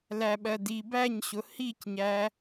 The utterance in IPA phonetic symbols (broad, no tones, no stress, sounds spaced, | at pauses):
l æ ɓ ɜ d i b æ ɲ ɕ ʊ h i c ɲ æ